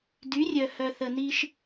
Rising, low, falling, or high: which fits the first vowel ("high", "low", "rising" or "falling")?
rising